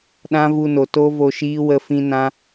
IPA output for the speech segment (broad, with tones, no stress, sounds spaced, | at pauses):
ɗ ã˦ v u˧ n o˨ t o˦ v o˧ ʃ iː˦ w ə˦ f ĩ˦ n ã˦